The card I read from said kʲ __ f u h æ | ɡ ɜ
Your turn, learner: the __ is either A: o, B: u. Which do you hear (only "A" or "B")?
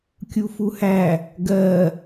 B